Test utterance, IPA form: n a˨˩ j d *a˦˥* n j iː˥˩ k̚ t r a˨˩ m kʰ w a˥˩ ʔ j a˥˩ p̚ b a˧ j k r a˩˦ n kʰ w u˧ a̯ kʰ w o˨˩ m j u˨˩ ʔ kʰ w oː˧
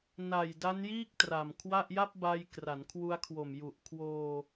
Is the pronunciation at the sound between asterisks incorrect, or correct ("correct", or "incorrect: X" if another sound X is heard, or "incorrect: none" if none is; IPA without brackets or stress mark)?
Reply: correct